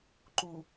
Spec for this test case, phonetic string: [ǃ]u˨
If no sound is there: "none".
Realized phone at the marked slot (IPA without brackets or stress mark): ǃ